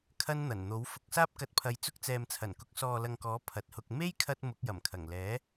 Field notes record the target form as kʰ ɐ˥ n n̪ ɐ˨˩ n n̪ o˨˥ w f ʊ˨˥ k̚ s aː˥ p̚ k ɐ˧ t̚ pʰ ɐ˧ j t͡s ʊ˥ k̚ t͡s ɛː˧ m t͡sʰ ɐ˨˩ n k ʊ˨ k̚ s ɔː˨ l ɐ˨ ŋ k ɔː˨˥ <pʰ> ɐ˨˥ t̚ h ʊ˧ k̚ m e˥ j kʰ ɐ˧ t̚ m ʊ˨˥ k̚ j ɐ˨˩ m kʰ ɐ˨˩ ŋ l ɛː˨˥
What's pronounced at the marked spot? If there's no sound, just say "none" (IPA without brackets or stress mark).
pʰ